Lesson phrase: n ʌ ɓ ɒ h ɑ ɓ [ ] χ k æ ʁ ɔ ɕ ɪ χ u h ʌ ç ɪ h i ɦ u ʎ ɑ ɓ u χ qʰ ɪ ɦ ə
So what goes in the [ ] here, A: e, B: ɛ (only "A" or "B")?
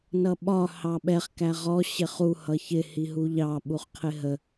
B